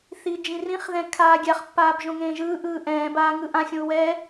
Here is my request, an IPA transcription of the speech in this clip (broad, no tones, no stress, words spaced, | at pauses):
θid͡ʒĩrĩχðɛ̃ kʰaːɡʲaχpːaːb ʒõŋẽːʒɯːʔɯː ʔɛ̃ːbaː ŋɯʔãxʲõu̯ wɛ